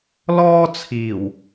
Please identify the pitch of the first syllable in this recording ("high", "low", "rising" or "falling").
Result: high